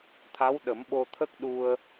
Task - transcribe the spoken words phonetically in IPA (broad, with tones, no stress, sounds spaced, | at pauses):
t̪ʰ a˧˥ w ɗ ə˨˩˦ m ɓ o˧ t̪ʰ ə˦˥ k̚ ɗ u˧ ə̯